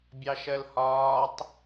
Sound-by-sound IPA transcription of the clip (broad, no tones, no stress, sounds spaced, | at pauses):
bʲ ɑ ʃ ɜ l h ɒː tˤ